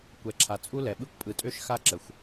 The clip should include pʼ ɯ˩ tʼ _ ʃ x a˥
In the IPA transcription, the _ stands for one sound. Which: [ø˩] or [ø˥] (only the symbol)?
ø˥